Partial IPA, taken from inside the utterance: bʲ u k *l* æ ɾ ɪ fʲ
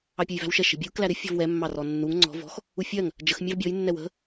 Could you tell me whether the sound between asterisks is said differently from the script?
no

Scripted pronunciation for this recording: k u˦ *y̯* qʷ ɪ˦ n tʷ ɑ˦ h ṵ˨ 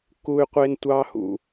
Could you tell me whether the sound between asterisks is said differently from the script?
no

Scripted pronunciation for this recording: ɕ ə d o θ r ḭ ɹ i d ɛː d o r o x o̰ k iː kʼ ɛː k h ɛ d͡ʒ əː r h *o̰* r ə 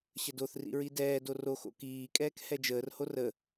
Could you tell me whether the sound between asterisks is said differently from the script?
yes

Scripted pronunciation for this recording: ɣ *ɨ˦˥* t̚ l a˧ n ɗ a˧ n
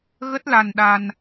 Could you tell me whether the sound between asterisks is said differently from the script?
yes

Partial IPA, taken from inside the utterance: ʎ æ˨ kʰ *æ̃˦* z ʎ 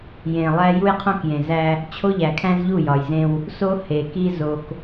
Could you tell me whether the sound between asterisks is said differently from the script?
no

